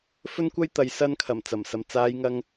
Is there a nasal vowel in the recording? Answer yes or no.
no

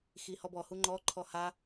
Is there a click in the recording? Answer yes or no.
yes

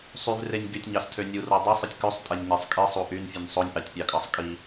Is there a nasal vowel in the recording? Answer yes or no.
no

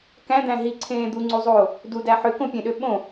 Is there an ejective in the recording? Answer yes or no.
no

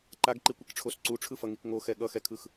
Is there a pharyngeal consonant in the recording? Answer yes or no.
no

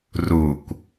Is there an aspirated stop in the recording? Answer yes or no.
no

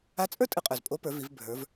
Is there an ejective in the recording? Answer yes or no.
yes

